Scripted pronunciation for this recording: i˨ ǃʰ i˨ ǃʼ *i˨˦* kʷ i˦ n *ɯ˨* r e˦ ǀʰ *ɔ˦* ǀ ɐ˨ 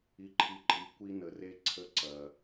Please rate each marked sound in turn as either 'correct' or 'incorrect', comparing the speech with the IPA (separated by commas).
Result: incorrect, incorrect, incorrect